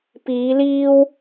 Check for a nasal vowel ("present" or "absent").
absent